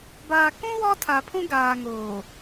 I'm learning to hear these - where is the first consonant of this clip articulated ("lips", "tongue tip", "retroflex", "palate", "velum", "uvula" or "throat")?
lips